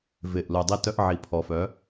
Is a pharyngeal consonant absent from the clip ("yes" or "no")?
no